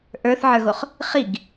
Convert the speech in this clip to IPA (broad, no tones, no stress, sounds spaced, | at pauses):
ʔ ə˞ θ ʕ ə˞ ɣ o χ | χ i ɡ